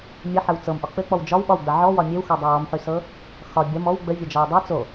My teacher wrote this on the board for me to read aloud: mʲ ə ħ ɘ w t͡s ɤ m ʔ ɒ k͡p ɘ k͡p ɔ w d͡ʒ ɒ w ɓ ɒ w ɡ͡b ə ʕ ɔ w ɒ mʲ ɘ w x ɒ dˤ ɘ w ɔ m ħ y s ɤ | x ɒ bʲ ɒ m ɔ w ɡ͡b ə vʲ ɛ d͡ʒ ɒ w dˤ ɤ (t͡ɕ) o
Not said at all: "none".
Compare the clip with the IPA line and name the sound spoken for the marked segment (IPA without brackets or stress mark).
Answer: t͡s